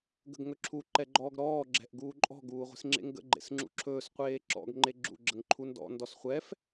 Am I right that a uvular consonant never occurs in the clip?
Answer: no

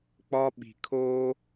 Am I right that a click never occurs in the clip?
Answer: yes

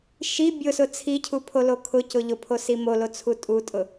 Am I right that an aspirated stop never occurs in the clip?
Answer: no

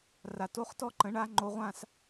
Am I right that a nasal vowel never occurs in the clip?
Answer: no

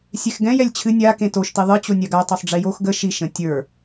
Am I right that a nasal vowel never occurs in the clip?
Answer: no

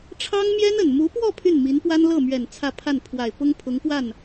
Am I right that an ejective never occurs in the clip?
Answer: yes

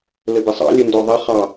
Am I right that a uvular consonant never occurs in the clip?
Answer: no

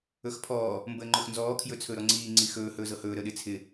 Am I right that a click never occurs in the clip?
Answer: no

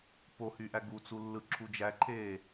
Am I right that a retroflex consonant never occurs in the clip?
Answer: yes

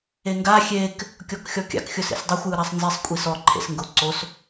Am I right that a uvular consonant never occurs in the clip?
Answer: yes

